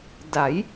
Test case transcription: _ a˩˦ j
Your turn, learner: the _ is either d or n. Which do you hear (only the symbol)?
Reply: d